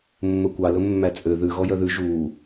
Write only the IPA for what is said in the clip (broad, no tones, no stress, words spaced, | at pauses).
mːɵkʷɑ lɵmːæt͡sʼø ðʉ ɣɔjœðʉ ʒuː